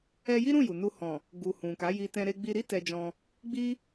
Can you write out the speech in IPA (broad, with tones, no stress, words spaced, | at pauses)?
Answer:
ɛ˧ji˦ɾũ˦˨ ju˨nu˧ hɔ̃˨ | ɡu˨ hũ˨ka˨˦ji˧ tɛ̃˧ɾe˧ ɡ͡bi˧ɾi˦ tɛ˧d͡ʒɔ̃˧ | ɡ͡bi˦